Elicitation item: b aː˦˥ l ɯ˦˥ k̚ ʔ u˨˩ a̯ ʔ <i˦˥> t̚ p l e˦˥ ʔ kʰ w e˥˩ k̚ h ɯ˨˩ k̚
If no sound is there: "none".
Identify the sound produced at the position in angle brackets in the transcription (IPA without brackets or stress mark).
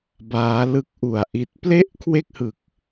i˦˥